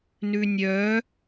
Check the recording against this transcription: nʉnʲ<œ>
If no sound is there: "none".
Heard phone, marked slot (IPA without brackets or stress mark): œ